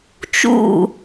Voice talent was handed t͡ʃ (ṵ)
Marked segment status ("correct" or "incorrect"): correct